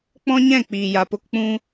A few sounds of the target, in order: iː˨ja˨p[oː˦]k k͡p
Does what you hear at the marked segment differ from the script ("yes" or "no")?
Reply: yes